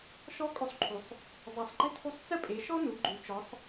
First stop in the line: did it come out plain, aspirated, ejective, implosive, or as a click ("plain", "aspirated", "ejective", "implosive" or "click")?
ejective